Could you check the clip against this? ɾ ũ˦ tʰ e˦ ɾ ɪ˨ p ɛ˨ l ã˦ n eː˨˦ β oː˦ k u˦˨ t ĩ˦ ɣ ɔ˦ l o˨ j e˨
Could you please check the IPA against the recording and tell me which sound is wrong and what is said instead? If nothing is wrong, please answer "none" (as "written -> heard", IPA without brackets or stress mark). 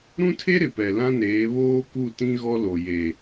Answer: none